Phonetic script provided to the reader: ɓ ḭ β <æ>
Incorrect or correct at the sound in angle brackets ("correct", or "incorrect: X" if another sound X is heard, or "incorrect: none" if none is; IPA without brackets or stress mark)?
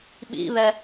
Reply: incorrect: ɛ